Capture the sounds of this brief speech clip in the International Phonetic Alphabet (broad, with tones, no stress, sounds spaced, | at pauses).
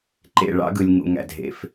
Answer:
ǃ ḛ˦˨ ɭ ɑ̰˦ ɡ ɯ˨ lʲ ŋ ṵ˨ ŋ æ̰˨ dʱ ḛ˨ f